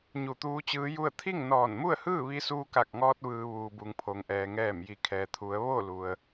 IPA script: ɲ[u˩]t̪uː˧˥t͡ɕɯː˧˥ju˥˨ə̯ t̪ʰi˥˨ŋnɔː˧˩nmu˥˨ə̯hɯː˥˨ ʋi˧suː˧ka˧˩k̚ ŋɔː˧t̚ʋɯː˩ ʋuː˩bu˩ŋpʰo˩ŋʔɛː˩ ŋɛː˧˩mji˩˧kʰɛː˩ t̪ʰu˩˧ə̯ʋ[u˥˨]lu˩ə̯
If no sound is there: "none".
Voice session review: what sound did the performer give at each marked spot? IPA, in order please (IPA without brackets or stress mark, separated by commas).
u˧˩, o˥˨